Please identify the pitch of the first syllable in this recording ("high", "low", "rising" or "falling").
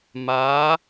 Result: rising